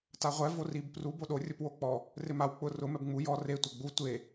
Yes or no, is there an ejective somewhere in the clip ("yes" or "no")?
no